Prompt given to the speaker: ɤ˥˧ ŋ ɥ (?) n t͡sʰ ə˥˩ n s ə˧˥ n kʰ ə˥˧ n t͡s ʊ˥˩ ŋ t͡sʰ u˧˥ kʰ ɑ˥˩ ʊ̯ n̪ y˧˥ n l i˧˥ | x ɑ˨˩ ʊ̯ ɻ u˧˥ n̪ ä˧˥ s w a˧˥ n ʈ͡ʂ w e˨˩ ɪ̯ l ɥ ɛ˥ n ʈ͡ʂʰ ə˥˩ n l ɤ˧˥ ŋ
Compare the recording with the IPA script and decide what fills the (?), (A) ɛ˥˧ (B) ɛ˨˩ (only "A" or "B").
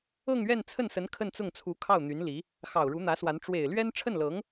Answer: A